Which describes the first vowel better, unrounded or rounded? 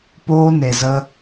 rounded